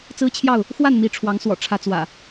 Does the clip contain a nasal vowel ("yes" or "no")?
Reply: no